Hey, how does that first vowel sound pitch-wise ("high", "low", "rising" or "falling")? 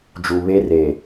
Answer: low